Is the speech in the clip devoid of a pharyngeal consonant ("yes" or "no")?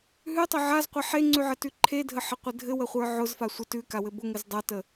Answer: no